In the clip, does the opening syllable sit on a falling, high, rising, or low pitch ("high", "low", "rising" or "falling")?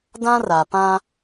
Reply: high